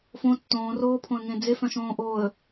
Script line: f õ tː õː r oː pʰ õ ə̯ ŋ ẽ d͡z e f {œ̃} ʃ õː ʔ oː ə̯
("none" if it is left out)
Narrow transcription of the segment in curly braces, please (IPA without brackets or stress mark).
œ̃